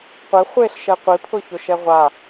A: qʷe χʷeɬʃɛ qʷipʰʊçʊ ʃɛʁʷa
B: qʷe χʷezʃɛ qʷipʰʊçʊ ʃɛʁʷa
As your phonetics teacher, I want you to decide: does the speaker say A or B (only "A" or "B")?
A